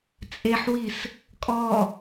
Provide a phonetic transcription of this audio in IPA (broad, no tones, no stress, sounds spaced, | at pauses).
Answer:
t͡sʼ e ħ w i s | kʼ ɔ